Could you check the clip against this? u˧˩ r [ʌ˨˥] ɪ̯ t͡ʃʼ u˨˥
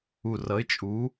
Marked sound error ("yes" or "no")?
no